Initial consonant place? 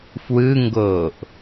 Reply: labial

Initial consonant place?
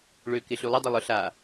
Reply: retroflex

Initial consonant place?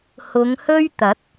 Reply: glottal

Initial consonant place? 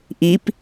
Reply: glottal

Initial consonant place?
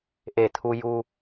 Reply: glottal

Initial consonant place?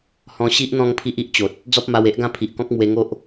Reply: glottal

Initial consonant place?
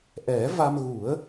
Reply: glottal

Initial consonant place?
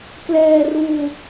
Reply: velar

